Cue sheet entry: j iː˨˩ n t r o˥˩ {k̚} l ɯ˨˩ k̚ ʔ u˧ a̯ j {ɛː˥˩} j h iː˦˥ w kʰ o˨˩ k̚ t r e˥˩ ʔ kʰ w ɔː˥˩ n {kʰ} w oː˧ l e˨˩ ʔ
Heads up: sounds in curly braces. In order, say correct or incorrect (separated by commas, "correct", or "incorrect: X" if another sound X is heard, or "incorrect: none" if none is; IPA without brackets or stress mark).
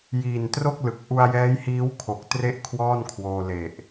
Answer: correct, incorrect: ɛː˦˥, correct